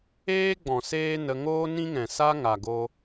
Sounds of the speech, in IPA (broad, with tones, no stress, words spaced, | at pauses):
eː˦ɡ͡bɔ̃˨ seː˦nə˧ ŋoː˦nĩ˦ŋɛ̃˨sa˦ ŋa˨ɡo˧